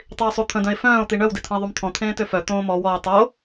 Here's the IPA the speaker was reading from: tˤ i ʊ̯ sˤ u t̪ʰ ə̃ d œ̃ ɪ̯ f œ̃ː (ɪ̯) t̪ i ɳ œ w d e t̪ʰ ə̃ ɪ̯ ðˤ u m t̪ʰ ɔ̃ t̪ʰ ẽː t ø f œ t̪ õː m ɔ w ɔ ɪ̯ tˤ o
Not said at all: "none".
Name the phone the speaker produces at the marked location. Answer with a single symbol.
ʊ̯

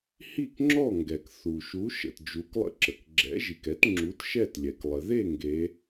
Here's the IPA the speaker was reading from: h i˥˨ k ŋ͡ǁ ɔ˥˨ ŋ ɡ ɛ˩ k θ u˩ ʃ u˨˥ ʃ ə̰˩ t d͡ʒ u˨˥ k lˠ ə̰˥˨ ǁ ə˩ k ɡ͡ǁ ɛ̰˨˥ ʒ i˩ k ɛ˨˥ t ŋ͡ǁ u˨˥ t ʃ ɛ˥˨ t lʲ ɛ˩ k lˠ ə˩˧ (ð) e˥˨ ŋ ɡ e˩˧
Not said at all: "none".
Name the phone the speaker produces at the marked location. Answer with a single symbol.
ð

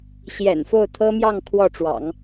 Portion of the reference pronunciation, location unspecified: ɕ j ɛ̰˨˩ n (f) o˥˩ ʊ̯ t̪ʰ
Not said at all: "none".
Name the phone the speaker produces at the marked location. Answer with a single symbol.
f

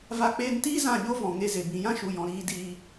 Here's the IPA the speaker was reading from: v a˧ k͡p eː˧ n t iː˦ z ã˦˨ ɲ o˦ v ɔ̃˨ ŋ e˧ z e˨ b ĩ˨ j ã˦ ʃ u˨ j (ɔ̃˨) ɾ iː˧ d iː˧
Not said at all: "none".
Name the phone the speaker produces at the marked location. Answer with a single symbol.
ɔ̃˨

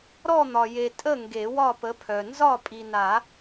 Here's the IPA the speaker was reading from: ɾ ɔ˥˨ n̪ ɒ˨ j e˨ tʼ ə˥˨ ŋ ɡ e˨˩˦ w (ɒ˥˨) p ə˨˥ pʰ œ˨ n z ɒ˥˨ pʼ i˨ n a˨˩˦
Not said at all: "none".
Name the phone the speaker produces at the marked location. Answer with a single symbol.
ɒ˥˨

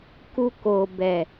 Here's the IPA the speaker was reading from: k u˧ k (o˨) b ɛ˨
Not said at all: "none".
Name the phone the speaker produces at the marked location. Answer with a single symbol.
o˨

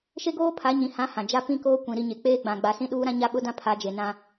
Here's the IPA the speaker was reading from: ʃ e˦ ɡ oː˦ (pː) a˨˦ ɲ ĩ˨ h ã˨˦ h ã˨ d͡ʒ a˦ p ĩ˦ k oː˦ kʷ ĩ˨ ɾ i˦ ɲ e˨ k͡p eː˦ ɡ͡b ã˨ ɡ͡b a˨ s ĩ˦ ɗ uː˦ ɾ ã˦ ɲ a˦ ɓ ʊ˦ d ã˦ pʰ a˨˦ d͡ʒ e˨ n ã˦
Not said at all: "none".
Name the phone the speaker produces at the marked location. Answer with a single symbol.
pʰ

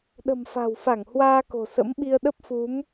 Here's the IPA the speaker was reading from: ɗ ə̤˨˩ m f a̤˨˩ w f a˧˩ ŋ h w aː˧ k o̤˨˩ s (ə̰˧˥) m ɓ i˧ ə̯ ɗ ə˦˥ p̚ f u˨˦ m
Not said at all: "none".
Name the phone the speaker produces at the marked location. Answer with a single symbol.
ə̰˧˥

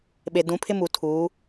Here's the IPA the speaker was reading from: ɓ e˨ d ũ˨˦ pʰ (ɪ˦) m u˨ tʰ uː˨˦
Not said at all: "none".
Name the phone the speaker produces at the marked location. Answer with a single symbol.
ɪ˦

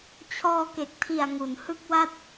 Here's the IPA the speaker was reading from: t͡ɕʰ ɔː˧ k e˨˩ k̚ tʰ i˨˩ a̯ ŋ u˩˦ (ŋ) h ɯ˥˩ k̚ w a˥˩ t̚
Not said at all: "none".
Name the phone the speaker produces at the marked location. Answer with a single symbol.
n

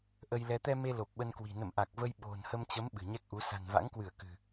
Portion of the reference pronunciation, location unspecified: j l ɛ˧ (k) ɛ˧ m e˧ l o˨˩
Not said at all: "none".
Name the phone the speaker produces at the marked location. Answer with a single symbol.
t̪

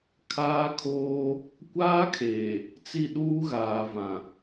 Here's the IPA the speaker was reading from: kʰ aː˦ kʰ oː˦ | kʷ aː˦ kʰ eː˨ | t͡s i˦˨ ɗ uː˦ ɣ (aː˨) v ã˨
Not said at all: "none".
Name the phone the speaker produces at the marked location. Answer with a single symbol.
aː˨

